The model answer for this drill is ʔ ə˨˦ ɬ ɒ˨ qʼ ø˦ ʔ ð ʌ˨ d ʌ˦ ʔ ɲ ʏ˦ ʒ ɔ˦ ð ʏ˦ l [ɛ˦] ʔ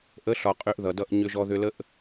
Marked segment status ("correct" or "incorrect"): incorrect